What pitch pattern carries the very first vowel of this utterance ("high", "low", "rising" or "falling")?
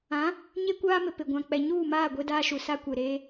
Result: rising